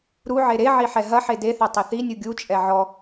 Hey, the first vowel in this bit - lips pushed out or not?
yes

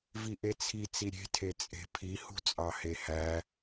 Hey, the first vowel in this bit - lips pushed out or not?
no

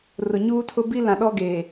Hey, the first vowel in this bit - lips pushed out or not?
yes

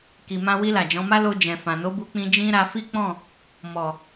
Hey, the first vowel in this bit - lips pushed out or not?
no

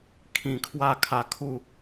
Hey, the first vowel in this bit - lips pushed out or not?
no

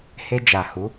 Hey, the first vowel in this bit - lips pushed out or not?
no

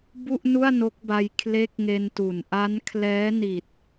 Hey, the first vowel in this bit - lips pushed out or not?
yes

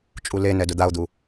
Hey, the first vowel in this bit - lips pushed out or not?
yes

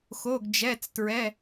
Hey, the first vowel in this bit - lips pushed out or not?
yes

